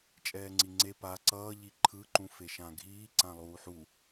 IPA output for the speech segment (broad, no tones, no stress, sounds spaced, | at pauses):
t͡ʃʼ ɛː ŋ͡ǀ i ŋ͡ǀ e p a ǀ ʌː ʎ i ǃʰ ɯ ǃ ũ f e ʃ ã ɡʱ iː ǀ ã lˠ uː ħ u